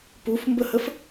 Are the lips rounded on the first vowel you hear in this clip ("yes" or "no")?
yes